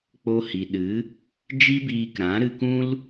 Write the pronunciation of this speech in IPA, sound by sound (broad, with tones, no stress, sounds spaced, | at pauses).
k͡p o˧ h i˨ ɗ ɨ˨˦ | d͡ʒ i˦ b iː˧ k ɾ ã˨˦ ɾ ɨ˧ k ũ˦ l